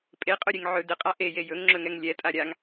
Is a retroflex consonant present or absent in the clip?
absent